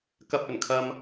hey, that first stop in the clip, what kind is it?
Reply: plain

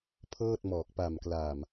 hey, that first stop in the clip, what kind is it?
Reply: aspirated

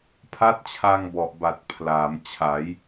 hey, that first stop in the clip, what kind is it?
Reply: aspirated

